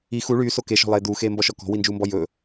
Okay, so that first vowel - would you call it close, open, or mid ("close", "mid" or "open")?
close